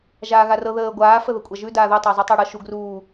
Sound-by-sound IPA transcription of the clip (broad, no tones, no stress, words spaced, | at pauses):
ʒaːɣarɤ ðəː ɡʷaː fəðəkʷʼaʒʉ daːðu tˤəːzˤʉtˤəːɽɤ ʃu ɡruː